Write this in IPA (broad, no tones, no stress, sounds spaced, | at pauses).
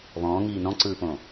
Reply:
β ɔ̃ː ŋ iː n ɔ̃ ǀ ɯː p õː